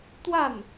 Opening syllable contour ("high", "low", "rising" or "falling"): falling